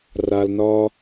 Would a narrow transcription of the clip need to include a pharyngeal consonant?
no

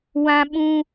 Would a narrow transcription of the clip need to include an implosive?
yes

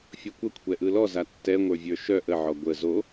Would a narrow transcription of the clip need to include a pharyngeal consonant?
yes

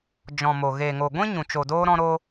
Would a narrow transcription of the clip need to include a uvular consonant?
no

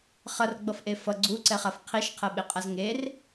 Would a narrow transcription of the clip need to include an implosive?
yes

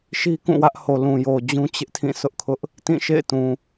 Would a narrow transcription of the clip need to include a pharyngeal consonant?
no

